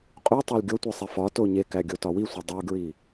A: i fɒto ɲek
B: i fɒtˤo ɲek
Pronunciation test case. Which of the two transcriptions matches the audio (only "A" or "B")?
A